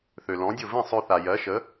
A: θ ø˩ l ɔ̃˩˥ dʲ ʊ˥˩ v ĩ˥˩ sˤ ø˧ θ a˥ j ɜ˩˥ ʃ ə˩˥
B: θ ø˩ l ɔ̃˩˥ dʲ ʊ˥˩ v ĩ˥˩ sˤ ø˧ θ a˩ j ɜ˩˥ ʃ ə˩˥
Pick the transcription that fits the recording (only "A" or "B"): B